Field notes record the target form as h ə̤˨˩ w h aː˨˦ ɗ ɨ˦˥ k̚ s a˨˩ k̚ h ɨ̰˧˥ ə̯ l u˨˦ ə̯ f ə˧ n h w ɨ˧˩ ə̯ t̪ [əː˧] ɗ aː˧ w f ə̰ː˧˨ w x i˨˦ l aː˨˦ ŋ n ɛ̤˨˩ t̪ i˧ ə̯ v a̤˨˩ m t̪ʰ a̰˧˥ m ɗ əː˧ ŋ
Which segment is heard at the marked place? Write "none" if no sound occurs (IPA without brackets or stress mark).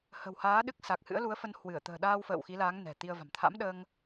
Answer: ə̤ː˨˩